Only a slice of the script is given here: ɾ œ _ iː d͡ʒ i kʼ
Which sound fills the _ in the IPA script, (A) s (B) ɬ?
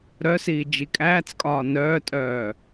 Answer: A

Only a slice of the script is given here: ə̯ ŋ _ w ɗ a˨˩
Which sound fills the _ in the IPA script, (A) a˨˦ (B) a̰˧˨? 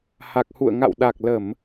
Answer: B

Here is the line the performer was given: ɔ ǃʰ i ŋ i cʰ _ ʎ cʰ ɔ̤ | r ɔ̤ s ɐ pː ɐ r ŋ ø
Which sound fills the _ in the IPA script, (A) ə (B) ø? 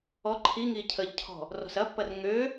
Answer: A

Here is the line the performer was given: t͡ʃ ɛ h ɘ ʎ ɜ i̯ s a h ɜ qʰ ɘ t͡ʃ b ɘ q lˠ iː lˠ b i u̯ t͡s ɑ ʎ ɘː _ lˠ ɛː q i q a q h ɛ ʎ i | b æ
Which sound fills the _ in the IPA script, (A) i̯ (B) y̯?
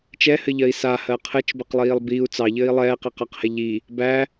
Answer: A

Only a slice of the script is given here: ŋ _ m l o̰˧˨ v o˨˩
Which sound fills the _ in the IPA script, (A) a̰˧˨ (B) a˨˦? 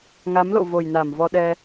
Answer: B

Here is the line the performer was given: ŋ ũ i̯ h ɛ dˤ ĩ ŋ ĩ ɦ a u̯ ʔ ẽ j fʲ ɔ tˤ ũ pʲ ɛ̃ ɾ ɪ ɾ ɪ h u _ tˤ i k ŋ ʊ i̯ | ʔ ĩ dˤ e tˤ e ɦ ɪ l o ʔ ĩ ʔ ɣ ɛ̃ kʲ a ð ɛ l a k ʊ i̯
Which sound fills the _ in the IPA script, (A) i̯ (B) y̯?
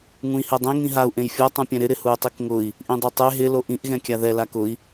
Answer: B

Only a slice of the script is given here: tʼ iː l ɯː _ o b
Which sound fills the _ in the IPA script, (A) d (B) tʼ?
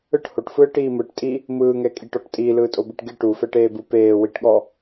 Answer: B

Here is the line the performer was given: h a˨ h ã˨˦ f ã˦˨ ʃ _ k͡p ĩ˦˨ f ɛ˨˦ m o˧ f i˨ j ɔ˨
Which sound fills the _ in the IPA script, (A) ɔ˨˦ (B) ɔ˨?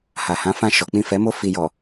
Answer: A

